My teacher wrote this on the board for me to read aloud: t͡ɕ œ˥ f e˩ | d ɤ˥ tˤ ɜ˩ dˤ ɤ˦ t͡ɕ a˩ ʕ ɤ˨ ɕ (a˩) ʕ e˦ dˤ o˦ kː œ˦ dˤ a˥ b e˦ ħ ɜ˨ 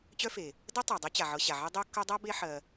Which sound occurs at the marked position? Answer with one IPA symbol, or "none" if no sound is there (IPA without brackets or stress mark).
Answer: a˩